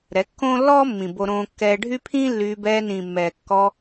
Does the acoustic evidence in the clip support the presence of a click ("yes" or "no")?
no